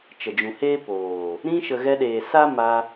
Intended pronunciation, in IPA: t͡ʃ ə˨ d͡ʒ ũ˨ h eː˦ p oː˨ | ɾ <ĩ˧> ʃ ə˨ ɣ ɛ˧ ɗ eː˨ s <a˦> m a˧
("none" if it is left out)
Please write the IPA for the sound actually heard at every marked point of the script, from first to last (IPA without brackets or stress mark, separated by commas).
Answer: ĩ˧, a˦